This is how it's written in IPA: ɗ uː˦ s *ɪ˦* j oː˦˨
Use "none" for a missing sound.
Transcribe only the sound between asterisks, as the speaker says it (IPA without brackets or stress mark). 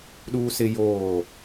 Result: ɪ˦